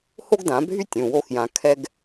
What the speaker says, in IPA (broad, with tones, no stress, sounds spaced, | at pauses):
h o˥ ɡ d ã˨˩˦ bʱ y˥ tʲ ũ˩˧˩ w o˥ x j ã˧ kʰ ɛ˥ ɡ